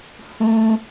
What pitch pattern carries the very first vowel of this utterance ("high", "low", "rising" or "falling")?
high